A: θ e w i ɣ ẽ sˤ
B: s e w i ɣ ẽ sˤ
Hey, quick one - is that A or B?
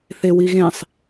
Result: A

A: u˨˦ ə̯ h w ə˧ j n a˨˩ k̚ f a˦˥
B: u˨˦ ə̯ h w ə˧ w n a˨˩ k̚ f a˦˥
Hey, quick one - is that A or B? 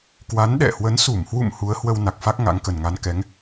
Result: B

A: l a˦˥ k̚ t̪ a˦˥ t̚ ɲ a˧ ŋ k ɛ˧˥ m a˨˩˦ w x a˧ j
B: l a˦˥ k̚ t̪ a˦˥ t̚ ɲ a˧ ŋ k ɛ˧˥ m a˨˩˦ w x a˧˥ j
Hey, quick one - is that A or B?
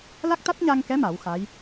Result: B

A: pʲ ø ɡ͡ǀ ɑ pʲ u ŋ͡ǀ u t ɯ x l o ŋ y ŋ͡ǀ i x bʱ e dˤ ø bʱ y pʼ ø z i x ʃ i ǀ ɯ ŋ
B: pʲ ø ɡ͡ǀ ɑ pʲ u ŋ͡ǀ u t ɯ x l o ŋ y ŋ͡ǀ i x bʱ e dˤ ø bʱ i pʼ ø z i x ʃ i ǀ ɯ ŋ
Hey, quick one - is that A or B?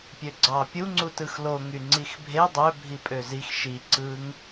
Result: B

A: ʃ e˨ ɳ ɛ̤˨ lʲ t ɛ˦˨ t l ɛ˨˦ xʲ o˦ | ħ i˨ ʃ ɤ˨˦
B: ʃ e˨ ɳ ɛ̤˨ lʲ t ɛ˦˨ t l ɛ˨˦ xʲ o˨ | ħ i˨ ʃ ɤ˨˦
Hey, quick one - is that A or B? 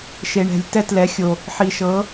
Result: B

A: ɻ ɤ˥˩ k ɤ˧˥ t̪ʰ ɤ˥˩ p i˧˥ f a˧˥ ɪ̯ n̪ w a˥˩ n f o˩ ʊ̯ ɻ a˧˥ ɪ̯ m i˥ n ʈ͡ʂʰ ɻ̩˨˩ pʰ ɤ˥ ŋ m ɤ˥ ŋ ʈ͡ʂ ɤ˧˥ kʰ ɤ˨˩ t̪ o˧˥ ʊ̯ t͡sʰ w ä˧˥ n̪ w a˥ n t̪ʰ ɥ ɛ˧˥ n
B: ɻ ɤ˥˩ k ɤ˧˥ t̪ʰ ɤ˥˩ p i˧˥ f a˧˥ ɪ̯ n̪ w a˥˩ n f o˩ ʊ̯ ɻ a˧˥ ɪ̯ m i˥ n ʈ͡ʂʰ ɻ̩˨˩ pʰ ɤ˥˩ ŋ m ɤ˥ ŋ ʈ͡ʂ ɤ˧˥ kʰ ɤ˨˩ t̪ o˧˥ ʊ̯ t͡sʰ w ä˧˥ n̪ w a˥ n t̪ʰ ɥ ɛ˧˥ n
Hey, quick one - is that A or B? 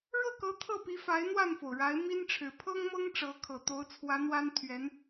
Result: A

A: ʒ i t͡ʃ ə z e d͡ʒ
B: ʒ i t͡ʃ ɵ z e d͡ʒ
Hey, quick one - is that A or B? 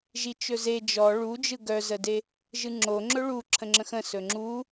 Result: B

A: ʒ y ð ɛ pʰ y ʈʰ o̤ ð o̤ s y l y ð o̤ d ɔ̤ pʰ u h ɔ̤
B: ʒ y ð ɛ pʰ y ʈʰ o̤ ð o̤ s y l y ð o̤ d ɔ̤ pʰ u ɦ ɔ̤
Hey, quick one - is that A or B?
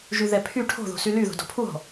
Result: B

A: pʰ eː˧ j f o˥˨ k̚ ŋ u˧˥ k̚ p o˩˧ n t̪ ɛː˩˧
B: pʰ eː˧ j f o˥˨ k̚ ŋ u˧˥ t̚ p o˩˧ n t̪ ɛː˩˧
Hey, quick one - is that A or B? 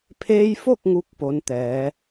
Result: A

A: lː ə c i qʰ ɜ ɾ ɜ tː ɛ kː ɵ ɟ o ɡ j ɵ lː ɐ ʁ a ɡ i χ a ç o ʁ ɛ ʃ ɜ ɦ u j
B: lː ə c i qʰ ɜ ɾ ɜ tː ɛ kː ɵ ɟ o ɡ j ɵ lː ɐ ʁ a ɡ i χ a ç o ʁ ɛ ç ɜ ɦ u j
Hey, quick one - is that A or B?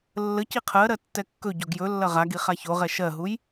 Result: A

